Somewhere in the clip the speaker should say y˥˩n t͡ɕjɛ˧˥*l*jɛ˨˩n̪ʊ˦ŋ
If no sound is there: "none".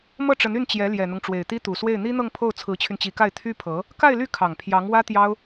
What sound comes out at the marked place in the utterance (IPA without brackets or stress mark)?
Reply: l